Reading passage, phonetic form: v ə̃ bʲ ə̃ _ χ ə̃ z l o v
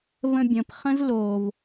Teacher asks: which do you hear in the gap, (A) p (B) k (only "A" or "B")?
A